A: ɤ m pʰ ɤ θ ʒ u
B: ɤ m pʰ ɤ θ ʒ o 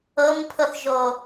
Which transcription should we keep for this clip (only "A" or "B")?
B